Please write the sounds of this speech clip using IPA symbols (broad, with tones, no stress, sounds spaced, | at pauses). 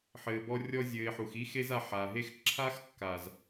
ħ ɘː˨ b ɔ˧ rʲ ɔ˧ zʲ ɘː˨ ɪ̯ ħ u˨ x i˦ x e˦ z a˧ ħ a˨ ɦ e˦ x ǁʰ a˦ x kː a˨ z